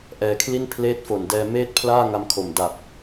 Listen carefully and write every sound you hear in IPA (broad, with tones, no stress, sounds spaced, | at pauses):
ʔ ɛː˧ kʰ l i˥˩ n pʰ l eː˦˥ t̚ f o˨˩ n d ɛː˧ m eː˥˩ t̚ pʰ l aː˥˩ ŋ a˧ m kʰ o˨˩ m d a˨˩ p̚